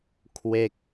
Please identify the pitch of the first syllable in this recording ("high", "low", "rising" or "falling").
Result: falling